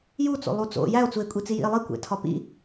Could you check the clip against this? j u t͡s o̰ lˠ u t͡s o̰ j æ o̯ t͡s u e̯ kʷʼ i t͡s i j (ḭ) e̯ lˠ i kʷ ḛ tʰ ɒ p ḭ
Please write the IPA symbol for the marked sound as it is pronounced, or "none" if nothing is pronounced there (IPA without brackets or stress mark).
ḭ